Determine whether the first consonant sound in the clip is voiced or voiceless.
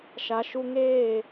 voiceless